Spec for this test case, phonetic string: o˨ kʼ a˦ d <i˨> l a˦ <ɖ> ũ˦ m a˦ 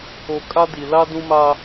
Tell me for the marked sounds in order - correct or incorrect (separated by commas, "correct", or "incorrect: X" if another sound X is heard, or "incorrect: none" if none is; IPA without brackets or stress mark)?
correct, incorrect: d